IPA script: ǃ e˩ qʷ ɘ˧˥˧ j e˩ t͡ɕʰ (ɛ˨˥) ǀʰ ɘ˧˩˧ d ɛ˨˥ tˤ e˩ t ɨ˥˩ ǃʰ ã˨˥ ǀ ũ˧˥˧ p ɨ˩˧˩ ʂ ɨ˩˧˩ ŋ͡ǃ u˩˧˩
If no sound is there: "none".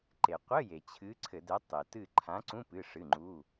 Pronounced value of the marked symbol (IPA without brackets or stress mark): ɨ˨˥